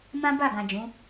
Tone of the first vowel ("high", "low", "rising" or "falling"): high